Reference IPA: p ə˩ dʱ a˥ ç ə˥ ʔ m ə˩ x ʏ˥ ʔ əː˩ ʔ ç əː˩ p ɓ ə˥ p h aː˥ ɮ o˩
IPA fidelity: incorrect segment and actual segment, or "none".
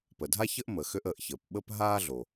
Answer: h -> ɦ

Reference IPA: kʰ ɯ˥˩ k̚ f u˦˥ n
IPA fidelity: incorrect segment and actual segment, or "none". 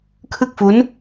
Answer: none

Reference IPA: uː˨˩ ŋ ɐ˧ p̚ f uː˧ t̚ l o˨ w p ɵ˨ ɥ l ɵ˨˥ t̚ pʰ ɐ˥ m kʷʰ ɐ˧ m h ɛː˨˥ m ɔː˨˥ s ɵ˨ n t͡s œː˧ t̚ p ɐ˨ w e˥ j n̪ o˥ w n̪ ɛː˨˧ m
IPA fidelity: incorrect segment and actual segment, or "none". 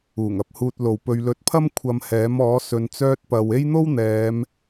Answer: f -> h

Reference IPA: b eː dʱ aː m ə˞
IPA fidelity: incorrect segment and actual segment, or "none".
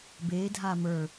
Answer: none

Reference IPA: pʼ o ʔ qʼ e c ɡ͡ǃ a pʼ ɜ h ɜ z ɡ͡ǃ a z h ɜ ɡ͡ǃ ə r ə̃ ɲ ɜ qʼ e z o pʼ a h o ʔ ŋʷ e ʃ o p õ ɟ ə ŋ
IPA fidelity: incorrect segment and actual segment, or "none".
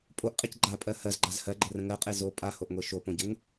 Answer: ɲ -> ŋ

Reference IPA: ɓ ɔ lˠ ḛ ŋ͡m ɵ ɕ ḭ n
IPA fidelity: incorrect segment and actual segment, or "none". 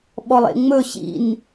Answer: none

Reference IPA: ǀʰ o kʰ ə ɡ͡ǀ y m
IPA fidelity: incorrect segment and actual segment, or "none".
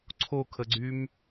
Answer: none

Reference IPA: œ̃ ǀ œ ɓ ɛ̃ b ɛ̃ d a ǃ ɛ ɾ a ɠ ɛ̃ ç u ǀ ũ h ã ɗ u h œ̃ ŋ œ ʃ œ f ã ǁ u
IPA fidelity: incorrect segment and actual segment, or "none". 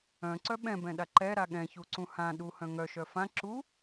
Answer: d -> ɗ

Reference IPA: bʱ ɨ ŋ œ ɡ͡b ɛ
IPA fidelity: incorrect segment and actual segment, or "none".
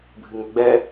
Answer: none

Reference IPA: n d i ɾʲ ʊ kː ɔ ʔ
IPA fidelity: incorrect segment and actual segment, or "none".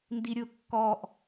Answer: none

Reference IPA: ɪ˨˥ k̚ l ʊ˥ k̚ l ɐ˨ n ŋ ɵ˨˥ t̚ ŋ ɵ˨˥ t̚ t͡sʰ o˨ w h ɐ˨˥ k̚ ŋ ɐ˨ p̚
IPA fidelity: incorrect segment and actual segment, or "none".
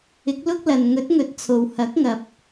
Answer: none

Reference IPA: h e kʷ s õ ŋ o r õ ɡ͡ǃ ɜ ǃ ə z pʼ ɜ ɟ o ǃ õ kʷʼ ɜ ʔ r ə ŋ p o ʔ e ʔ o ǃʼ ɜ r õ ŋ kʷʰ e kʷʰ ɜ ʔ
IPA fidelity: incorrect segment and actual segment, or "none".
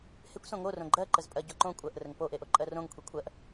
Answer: none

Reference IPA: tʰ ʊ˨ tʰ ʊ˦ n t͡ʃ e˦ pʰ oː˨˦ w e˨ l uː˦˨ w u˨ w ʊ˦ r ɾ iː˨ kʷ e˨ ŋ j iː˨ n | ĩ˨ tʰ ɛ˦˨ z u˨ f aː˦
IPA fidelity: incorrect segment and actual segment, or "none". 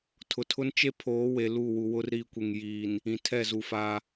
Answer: none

